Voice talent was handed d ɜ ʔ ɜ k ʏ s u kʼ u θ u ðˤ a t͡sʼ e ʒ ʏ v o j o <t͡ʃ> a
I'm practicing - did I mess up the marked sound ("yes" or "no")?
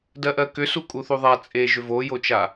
no